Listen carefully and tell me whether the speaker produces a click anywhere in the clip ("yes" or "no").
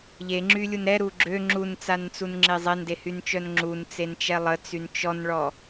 yes